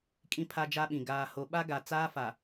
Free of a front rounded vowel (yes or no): yes